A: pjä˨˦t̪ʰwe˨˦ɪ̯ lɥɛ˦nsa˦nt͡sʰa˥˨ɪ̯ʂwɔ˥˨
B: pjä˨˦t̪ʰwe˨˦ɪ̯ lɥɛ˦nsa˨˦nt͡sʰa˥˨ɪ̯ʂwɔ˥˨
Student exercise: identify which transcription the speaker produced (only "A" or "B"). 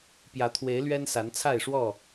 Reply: B